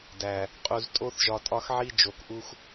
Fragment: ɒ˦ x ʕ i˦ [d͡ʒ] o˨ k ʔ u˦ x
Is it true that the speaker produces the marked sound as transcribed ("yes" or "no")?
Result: yes